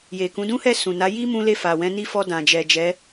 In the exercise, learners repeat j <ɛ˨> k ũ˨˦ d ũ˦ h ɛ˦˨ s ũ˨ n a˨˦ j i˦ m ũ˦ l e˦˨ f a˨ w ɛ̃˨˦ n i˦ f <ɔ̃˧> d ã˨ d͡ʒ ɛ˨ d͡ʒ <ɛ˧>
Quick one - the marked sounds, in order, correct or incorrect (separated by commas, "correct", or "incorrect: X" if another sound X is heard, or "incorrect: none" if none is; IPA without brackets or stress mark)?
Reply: incorrect: e˨, incorrect: ɔ˧, incorrect: ɛ˨˦